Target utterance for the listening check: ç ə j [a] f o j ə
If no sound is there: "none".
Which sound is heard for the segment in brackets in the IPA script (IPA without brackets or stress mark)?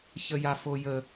a